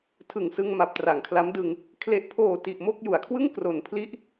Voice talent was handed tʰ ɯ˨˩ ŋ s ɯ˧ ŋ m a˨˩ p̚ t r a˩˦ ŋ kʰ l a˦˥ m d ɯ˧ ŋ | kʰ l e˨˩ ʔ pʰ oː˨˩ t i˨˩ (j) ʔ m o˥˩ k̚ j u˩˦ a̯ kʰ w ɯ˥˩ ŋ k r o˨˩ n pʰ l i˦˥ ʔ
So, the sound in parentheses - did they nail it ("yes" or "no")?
no